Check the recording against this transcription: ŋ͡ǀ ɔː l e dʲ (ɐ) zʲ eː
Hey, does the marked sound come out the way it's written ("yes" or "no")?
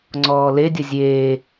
yes